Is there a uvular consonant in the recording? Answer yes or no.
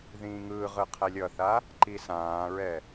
yes